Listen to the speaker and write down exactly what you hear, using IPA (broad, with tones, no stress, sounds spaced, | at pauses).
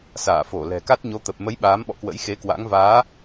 s aː˧˩ f o˧˩ l ɛ̤˨˩ k a˦˥ t̚ ɲ o˨˦ t̪ ə˨˩ p̚ m ə˨˦ j ɓ aː˨˦ m ɓ ɔ̰˧˨ k w ə̰˧˥ j x e˨˦ k w a̰˧˥ ŋ v aː˨˦